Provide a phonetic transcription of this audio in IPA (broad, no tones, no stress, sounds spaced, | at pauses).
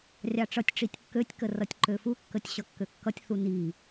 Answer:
rʲ ɑ ʈ͡ʂ ʌ tʲ ʈ͡ʂ i tʲ kː ø tʲ k ə r ʌ tʲ ǃ ø f u kː ə tʲ ɕ ʌ kː ø kː ʌ tʲ θ u n i